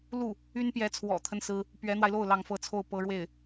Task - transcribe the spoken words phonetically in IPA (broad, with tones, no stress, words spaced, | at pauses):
lu˥˩ | y˥npjɛ˧˥ t͡sʰwɔ̰˨˩t̪ʰə˦n sɹ̩˥ | pɥɛ˧˥n̪wa˧ɪ̯lo˥˩ʊ̯ lɑ˧˥ŋfɤ˧˥t͡sʰo˥˩ʊ̯ pɤ˧˥ɻwe˥˩ɪ̯